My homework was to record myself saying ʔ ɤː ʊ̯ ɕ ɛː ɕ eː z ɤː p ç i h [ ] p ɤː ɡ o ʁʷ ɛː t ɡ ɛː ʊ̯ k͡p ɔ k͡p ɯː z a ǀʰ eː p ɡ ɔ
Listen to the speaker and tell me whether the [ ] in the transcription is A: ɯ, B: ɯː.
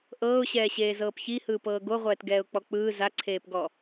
B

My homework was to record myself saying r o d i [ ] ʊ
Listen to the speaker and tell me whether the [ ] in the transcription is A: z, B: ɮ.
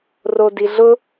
B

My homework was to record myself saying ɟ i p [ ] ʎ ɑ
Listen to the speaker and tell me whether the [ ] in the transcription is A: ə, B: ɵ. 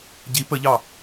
A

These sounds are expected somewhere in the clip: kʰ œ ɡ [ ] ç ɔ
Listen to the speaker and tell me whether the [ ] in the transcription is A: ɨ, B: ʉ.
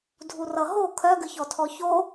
A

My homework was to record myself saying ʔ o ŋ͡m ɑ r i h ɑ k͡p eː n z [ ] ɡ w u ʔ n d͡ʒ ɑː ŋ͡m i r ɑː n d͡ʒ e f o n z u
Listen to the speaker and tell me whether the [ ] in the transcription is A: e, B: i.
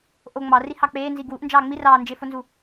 B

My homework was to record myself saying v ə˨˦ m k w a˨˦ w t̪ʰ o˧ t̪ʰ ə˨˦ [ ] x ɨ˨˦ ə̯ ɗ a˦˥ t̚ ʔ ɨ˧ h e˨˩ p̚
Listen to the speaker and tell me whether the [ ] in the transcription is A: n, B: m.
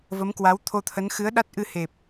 A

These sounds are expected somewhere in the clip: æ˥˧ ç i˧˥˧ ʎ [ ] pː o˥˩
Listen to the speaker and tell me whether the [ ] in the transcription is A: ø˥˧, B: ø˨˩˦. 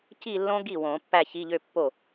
A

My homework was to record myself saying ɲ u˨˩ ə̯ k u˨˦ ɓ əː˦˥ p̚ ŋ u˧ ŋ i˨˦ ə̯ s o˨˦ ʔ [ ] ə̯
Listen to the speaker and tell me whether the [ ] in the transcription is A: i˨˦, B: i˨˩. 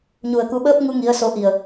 B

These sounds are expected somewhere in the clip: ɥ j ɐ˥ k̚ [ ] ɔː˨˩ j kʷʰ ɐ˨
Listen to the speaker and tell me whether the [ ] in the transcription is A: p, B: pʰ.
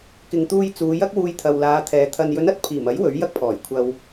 B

